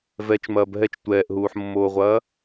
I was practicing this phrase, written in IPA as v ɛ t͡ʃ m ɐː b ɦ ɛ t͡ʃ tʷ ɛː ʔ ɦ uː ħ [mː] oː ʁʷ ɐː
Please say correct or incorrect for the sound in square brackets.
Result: correct